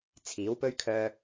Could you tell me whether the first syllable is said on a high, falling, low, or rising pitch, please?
rising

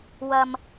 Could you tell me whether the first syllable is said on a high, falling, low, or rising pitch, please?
low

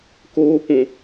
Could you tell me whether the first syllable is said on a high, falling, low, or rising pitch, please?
high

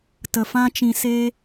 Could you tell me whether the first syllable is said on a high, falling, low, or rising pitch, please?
low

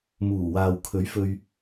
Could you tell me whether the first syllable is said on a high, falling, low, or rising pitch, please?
low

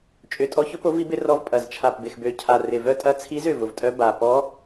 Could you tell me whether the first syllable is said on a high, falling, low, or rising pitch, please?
low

